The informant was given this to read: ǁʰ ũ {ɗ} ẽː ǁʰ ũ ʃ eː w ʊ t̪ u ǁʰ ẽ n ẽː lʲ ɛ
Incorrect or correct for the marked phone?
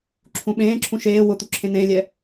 incorrect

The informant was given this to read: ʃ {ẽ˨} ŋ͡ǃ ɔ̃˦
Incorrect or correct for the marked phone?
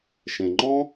correct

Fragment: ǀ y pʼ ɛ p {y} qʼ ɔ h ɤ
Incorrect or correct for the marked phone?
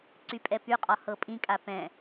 correct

